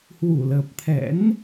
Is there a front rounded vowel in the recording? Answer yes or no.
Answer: no